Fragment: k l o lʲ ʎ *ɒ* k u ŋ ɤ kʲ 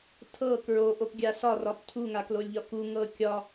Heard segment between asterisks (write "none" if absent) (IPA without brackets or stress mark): ɒ